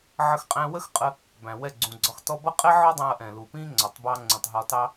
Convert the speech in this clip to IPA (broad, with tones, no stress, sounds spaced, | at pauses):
ʕ ə˧ x qʼ æ̃˧ w ə˦ x qʼ ə˧ | b æ̃˨ w ɛ˦˨ ɡ͡ǀ ũ˨ ɡ͡ǀ ɒ˧ x t ɔ˦ b ʌ˦ qʼ ɛ˦ ʕ ɔ˦ dˤ æ̃˧ ɐ̯ ʔ ɛ̃˨ l u˨ p ĩ˦ ŋ͡ǀ ɒ˨ tˤ b ɑ˧ ŋ͡ǀ ũ˨ tˤ ɦ ɒ˧ t ɑ˦